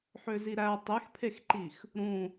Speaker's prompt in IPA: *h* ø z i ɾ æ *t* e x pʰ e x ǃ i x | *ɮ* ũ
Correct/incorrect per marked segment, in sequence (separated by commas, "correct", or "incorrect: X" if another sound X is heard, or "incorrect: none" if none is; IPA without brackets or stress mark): incorrect: ħ, incorrect: tˤ, incorrect: ɾ